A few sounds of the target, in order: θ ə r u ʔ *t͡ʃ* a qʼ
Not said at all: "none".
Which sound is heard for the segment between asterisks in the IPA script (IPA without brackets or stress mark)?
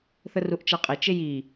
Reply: t͡ʃ